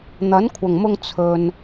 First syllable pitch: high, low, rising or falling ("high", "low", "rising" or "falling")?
rising